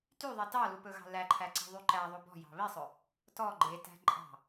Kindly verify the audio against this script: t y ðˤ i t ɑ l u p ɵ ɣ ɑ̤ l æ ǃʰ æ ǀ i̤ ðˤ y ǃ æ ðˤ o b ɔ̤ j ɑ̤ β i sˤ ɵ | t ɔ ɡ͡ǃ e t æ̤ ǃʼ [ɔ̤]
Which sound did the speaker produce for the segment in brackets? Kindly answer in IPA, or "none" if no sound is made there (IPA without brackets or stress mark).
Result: ɑ̤